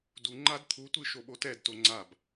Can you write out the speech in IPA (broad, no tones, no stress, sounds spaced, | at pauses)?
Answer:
d u ŋ͡ǃ a d t̪ʰ u tʷ ɨ ʃ o ɓ o t ɛ d t o ŋ͡ǀ a b